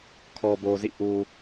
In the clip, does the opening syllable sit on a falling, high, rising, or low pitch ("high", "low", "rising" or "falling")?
low